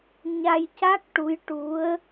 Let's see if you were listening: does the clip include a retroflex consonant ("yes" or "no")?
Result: yes